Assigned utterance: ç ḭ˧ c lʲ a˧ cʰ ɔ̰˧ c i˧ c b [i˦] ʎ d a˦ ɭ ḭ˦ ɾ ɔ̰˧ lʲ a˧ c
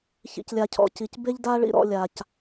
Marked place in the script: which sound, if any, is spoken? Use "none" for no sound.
e˦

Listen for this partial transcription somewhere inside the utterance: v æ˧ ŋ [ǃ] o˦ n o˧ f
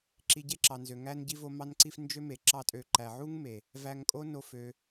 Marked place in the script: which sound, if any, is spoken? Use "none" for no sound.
kʼ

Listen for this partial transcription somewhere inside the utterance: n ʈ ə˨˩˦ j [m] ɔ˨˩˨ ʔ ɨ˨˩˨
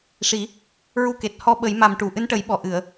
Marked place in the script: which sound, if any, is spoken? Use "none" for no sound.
ɓ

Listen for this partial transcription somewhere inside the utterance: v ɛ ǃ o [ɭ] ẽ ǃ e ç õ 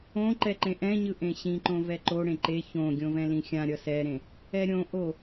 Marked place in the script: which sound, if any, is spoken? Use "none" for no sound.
ɽ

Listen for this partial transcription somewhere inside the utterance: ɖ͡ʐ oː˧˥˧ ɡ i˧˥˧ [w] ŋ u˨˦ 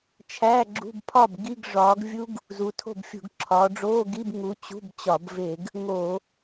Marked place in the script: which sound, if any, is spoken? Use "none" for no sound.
b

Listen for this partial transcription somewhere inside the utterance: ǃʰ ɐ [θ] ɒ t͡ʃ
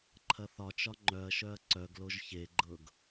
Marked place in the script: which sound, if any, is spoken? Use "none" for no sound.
θ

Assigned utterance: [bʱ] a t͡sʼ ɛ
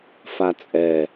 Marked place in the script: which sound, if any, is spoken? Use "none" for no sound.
f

